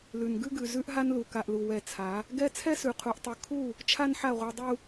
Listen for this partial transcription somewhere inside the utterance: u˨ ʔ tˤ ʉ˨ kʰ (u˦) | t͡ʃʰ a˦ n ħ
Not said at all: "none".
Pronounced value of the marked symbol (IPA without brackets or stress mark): u˦˨